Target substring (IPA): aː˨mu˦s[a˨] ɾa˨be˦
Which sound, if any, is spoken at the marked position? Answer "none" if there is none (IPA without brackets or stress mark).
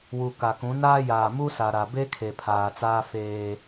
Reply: a˨